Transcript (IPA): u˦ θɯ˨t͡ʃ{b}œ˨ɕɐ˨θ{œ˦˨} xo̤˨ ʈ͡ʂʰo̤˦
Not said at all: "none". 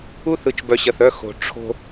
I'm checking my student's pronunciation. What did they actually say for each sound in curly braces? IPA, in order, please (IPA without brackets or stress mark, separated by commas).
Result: b, œ˦˨